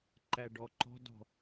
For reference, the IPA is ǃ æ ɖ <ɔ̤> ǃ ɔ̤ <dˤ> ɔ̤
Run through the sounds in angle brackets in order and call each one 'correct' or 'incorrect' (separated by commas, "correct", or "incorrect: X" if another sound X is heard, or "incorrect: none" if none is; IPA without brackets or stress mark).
incorrect: ɔ, incorrect: d